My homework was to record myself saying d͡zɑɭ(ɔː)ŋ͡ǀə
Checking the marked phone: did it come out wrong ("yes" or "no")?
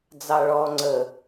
no